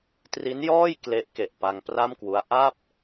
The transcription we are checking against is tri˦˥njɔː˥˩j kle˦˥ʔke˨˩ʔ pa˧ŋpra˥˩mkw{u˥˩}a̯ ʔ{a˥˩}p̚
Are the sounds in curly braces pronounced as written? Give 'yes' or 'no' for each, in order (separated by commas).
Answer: no, yes